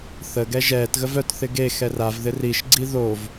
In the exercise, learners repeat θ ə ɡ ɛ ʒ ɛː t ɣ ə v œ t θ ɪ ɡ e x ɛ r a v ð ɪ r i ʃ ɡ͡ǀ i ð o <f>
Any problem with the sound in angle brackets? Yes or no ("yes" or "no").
yes